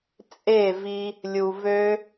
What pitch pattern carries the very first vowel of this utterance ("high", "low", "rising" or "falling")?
falling